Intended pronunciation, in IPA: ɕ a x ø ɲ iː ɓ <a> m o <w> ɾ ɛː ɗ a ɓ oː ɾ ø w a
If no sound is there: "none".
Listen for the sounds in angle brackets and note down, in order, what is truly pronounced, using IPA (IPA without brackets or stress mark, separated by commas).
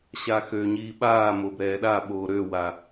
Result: aː, b